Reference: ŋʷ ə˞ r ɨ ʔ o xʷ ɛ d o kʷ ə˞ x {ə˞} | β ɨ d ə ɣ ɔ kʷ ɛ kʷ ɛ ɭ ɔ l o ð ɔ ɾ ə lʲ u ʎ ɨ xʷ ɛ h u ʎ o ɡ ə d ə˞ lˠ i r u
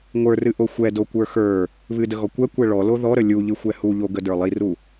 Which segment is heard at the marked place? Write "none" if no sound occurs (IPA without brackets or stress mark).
ə˞